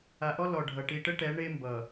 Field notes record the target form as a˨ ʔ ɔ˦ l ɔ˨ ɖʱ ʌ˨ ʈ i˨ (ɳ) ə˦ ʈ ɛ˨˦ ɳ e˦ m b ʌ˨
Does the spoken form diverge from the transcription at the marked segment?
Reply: yes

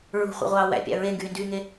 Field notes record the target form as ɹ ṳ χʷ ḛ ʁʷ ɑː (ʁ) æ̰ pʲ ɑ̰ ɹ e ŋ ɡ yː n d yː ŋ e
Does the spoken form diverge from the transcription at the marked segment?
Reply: yes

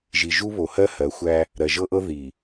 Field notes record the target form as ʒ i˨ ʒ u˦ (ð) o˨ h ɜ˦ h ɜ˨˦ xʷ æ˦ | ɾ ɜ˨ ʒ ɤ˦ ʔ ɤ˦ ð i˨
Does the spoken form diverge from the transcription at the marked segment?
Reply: yes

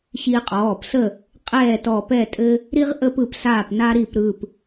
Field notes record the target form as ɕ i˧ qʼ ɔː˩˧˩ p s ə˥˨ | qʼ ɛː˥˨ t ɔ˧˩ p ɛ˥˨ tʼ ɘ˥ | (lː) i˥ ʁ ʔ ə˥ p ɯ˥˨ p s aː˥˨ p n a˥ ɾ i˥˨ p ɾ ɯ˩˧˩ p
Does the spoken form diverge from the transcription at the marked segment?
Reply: yes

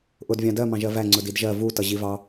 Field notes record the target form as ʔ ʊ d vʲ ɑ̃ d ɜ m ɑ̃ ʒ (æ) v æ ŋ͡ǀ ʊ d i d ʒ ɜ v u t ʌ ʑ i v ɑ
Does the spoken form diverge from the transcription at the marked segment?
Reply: yes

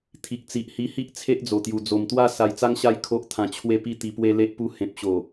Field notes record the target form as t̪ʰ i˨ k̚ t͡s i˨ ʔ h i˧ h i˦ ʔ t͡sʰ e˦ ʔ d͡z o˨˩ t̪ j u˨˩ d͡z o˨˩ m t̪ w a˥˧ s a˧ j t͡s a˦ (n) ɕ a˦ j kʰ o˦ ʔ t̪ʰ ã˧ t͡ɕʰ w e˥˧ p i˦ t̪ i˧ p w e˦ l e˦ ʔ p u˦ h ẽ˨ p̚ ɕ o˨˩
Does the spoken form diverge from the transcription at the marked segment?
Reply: yes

